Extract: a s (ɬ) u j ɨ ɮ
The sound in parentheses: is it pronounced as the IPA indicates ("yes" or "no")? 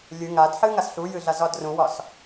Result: yes